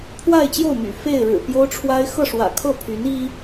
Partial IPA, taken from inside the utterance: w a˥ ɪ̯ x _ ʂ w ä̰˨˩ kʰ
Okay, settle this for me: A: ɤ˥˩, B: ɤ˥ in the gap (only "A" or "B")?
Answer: A